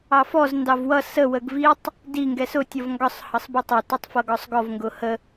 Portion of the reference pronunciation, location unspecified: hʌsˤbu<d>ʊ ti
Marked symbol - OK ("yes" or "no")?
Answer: no